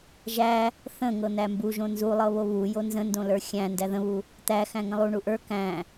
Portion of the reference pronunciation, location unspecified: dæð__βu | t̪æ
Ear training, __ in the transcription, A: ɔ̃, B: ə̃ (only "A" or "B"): B